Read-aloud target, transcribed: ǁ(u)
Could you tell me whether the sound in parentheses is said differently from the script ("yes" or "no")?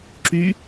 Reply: yes